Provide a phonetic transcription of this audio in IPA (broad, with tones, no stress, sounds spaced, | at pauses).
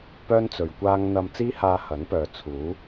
p œː˥ n t͡s ɵ˨ ɥ kʷ aː˥ ŋ n̪ ɐ˧ m t͡s iː˥ h aː˧ h ɐ˨˥ n p œː˨ t͡sʰ uː˨˥